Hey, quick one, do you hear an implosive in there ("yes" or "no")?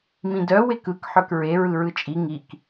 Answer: no